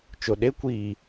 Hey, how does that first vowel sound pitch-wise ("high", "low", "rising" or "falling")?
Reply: low